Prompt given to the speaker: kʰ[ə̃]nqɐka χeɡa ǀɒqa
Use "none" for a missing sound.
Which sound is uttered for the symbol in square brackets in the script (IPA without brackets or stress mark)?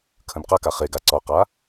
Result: ə̃